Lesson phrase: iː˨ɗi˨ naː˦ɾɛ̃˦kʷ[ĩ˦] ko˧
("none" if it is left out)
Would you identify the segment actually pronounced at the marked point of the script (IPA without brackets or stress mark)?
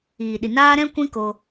ĩ˦